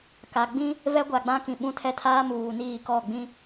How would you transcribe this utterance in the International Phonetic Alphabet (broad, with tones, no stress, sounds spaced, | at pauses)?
k a˨ ɡ͡b ĩ˦ | v ɛ˦ ɡʷ a˨ ɡ͡b ã˦ k ĩ˨ ɓ ũ˦˨ tʰ ɛ˦ tʰ aː˦ m uː˨ n iː˦˨ k ɔ˦˨ ɡ͡b ĩ˦